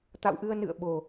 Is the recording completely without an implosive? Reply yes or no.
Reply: no